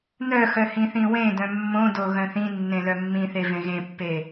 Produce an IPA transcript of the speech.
n œ x œ h ĩ θ ĩ w ẽ d œ̃ mː õ d o ɣ œ̃ θ ĩ nː ẽ l œ mː ĩ θ e v ẽ ɣ ẽ pː e

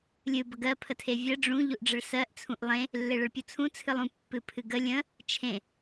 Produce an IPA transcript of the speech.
lʲ ɨ b ə ɡ ɜ pʰ ə tʰ e vʲ ɜ ɖ͡ʐ ũ ʎ u ʔ ɖ͡ʐ ə ɭ s ɜ ʔ t͡sʰ ũ ʔ lˠ ẽ | lː e ɭ ə ɭ pʲ u t͡sʰ ũ t͡sʰ ɨ lˠ ũ pː ɨ pʰ ɨ ɡ ə lʲ ə̃ | t͡ʃʰ ẽ

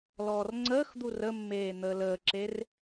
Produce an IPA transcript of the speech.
l ɔː r ŋ͡ǀ əː x d̪ u r ə mː eː n̪ əː l əː ǁ e r

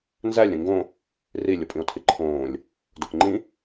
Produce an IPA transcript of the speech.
n z æ lʲ ɾ ĩ ŋ ɡ õ | r i lʲ o pʼ ĩ o̯ tʰ i ǃʰ õː lʲ | d o k ŋ͡ǃ ĩ

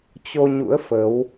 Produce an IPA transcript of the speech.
t͡ɕ o˧ ɲ ṵ˧˥ ə̯ f ə˨˦ w

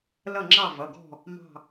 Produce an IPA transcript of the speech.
l ʌ˥˨ ŋ͡ǁ ɑ˥˨ v ʌ˩˧˩ ɡ ɔ̤˥˨ | m ɑ̤˥˨

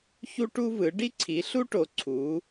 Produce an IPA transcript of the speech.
ç u˦ ʈ u˦ v ɯ˩˧ ɖ i˦ ǀʰ i˩˧ ɬ u˦ ʈ o˩˧ ǀʰ u˩˧

